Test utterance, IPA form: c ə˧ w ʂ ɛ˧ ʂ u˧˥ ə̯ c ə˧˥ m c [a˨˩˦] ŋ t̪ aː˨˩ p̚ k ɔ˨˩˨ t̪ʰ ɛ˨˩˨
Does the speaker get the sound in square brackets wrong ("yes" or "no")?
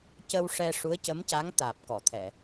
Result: yes